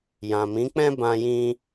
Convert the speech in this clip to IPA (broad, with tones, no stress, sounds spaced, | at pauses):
j ã˨ m ĩ˨˦ k͡p ɛ̃˦ b ã˦ j ĩ˦